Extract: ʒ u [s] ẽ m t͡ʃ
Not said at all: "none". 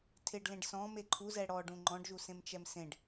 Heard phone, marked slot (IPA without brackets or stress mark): s